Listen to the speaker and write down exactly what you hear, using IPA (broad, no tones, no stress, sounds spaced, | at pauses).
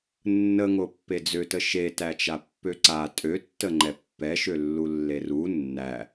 nː ə ŋ o pː e d͡z ø t ə ʃ e t æ t͡ʃ a pː ø ǀ a tʼ ø tː ə ŋ͡ǃ ɛ pː ɛ ʃ ø lː u lː e r u nː æ